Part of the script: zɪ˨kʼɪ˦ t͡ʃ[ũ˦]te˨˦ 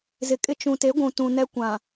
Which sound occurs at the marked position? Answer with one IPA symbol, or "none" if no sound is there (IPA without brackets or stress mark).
ũ˨